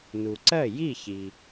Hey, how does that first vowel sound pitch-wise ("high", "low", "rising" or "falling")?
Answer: low